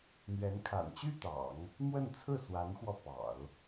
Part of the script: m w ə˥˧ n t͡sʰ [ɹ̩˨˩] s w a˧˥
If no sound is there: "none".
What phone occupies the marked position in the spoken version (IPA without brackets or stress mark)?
ɹ̩˥˩